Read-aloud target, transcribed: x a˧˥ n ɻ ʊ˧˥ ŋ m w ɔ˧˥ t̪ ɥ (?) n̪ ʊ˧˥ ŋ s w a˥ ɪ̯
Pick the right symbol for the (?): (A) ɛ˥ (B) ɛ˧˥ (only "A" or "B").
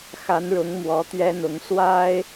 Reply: A